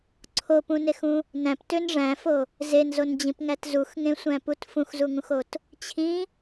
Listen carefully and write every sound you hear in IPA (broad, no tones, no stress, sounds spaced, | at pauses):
ǀʰ o p ũ n e x ũ | n æ̃ p t ø n ʐ æ̃ f o | z e n z o n d͡ʑ ĩ p ŋ æ t z u x ŋ ẽ sʷ æ̃ p u t f ũ x z u ŋ ũ x o t | t͡ɕʰ ĩ